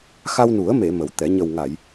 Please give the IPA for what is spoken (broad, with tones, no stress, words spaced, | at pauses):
xa˧wnu˨˩˦ə̯me˨˩˨ mə˨˩˦wt̪ɛ˨˩˦ ɲə˨˩wŋa˨˩˨j